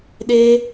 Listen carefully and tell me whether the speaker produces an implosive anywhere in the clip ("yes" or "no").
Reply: yes